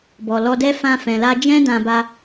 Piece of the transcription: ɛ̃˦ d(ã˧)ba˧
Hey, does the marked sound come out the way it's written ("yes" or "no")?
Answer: yes